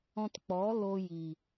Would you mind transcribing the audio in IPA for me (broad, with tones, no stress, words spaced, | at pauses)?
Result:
ɔ̃˧tk͡pɔ˨˦lo˧ji˨